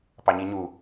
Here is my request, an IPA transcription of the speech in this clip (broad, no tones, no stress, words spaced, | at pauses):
pɑɲiɲu